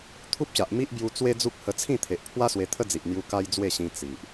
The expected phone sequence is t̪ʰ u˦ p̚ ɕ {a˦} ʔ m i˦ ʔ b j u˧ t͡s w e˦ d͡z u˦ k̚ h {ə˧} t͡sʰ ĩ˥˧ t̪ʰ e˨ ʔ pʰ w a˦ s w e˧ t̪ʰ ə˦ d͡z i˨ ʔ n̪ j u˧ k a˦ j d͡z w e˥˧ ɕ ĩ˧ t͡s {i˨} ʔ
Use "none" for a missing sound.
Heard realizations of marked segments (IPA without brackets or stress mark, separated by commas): a˨, ə˧, i˨